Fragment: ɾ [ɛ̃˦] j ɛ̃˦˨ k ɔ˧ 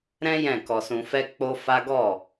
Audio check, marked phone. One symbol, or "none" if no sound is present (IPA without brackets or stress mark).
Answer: ɛ̃˦